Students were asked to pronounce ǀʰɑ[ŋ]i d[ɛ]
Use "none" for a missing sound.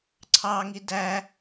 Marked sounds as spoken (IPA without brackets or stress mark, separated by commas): ŋ, æ